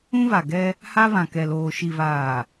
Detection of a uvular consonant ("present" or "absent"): absent